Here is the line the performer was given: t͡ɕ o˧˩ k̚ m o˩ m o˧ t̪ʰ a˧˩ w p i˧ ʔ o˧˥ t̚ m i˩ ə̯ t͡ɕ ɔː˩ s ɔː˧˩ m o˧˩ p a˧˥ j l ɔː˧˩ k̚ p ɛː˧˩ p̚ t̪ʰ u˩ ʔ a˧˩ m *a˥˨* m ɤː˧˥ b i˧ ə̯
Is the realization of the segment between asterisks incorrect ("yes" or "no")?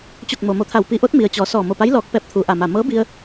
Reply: yes